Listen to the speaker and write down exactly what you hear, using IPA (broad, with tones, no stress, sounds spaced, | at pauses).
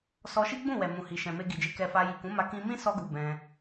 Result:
s ɔ˧ ʃ i˦ ɡ͡b ũ˦˨ w ɛ˨ m ũ˨ h i˨ ʃ ɛ̃˨ m e˧ ɡ i˨ d͡ʒ e˧ k ɛ˧ f a˧ j i˨ k ũ˨˦ m a˧ k ĩ˧ m ĩ˦ s ɔ˧ ɡ u˨ b ɛ̃˧